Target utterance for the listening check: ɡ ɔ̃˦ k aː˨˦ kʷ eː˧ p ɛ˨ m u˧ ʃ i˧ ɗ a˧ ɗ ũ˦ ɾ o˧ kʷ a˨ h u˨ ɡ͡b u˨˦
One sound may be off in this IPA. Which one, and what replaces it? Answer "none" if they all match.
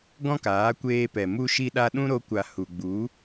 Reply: none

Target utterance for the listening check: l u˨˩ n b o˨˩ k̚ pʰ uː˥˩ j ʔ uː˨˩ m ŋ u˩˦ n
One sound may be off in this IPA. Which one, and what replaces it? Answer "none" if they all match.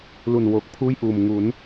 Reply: b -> w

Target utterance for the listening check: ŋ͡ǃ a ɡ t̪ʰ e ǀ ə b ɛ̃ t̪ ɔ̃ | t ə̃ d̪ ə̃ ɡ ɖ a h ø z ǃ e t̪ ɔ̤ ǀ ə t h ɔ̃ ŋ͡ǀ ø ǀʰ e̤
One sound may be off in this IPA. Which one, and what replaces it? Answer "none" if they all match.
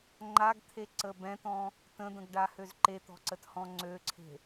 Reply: none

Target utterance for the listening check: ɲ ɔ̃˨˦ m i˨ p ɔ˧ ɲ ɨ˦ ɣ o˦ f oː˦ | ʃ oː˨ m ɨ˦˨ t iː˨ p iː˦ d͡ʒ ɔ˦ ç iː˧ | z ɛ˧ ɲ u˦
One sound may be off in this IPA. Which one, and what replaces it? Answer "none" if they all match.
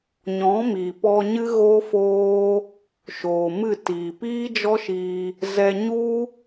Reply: ç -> ʃ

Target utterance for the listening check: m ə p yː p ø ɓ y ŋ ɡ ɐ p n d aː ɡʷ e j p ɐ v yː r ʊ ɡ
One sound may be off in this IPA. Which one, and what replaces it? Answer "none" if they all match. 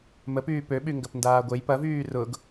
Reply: none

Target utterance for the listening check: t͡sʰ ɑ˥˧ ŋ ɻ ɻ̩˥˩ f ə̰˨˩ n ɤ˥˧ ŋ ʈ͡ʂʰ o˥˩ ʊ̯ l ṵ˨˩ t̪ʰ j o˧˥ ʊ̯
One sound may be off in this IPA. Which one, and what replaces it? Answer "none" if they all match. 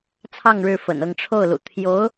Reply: none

